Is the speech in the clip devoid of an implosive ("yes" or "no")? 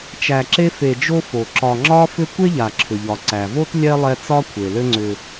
yes